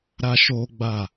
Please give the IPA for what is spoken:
ɾ a˦ ʃ oː˦ ɡ͡b a˦˨

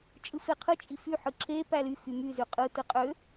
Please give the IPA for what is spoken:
t͡ʃʼ ɯ f e qʰ ɯ t͡ʃʼ i f y ħ ɯ ǁ e p æ l y x y m y z y qʼ ɯ t ɯ qʼ ø

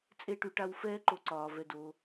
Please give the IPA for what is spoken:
t͡sʼ e˦ ʈ y˨ ʈ a˦ w f ɛː˦ ǃ o˨ ǀ ɒː˩ v ɛ˨ d oː˨

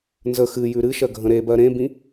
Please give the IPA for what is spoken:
n z ə x ɨ j ʉ ɾ ɨ ʃ ɜ ɡʱ ə̃ ɾ e b ɜ ɾ ẽ b ĩ

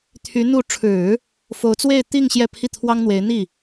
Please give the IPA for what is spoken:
t̪ʰ y˧˥ n̪ u˧˥ ʈ͡ʂʰ ɻ̩˨˩˦ | f o˧˥ ʊ̯ t͡s w e˥˧ ɪ̯ t̪ i˥˧ ŋ ɕ j ɛ˥˧ pʰ i˥˩ t̪ʰ w ɑ˥ ŋ n̪ w e˧˥ ɪ̯ n̪ i˥˩

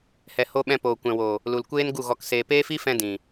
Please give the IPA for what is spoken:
h ɛ˨ h o˧ ɓ ɛ̃˧ p oː˨ kʷ ɛ̃˨ w oː˨ | l u˨ l kʷ eː˦ n ɡ u˦˨ ɣ ɔ˧ k s eː˧ p eː˦ f i˦ f ɛ̃˧ d ĩ˨

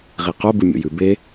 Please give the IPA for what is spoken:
ʁ i q o b ɨ mʲ o̰ j ʉ b e

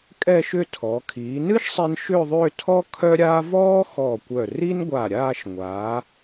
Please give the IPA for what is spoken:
kʼ ɛ˥˧ ʃ ʏ˥˧ tʰ ɔ˩˧ kʰ iː˩˧ n ɨ˥ ʃ sˤ i˧ n ʃ ʏ˥˧ ðˤ ʏː˥˧ tʰ ɔ˥ kʰ œ˥ ɾʲ aː˥ v ɔː˥ x ɔ˧˩ kʷ œ˧˩ r i˥ n ɡʷ a˧˩ ɾʲ aː˥˧ ʃ ŋʷ a˩˧

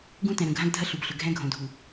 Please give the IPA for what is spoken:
ɡ ũ˦ t ɛ̃˨ ɾ ə̃˨ ɡʱ ã˦ ɡ dʱ ɐ˦ ɬ u˨ b ɬ ʏ˨ ɡʱ ɛ̃˦ ɡʱ õ˨ dʱ u˨

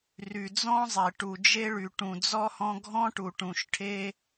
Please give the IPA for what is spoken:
r y˧ d͡z ɔ̃˥ zˤ e˧ ʈ u˧ d͡ʒ e˥ ɭ y˧ ʈ ũ˧ d͡z ɔ˥ h ɔ̃˥ ɡʱ ɔ̃˥ ʈ u˧ ʈ ũ˧ ʃ ʈʰ e˥

